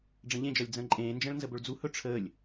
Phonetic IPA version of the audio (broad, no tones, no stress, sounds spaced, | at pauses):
ɖ͡ʐ ə̃ ʎ ẽ d͡ʒ ɒ lʲ d͡z ə̃ː ǃʼ ẽː n d͡ʒ ə̃ː ɭ n z ə b ɵ ɭ d͡z u h ɵ ʈ͡ʂʰ əː lʲ